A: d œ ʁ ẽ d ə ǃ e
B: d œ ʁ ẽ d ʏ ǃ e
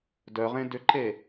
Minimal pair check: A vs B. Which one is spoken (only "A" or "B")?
B